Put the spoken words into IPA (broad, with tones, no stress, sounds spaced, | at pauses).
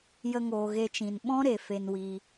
j ə˧ ŋ oː˨ ɣ e˧ t͡ʃ ĩ˨ n ɓ ɔ̃˦ ɾ e˨ f e˧ n w iː˧